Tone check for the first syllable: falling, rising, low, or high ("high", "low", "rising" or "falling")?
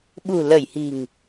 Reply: low